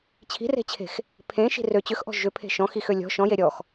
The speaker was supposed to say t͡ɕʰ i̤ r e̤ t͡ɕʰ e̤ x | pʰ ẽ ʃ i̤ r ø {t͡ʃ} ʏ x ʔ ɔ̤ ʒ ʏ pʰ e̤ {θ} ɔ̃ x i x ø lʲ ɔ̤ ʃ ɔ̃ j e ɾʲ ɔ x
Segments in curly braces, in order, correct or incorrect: incorrect: t͡ɕ, incorrect: ʃ

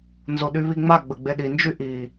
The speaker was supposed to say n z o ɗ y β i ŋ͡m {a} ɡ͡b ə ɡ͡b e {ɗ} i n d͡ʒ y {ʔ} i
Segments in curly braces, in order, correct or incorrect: correct, correct, correct

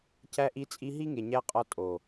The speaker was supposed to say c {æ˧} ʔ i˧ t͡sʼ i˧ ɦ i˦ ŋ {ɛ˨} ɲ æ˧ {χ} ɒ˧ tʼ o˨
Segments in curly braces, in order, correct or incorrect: correct, incorrect: e˨, incorrect: qʼ

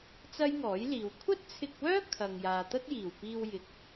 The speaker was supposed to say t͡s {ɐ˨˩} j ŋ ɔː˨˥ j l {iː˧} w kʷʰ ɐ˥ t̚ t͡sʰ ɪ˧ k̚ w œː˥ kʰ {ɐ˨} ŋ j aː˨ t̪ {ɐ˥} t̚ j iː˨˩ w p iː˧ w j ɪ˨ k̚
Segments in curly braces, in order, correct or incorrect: incorrect: ɐ˥, incorrect: iː˨, correct, correct

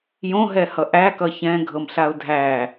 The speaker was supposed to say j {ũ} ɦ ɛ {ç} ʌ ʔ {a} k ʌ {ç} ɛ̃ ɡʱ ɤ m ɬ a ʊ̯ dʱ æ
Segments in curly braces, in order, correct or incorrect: incorrect: õ, incorrect: h, incorrect: æ, correct

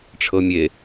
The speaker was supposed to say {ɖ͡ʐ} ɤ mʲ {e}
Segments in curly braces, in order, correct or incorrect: incorrect: ʈ͡ʂʰ, correct

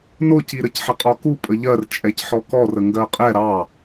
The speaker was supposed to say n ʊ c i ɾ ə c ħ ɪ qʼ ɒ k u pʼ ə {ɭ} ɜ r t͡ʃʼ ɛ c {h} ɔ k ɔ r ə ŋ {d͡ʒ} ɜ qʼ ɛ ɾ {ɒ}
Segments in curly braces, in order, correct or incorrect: incorrect: ʎ, incorrect: ħ, incorrect: ɡ, incorrect: ɑ

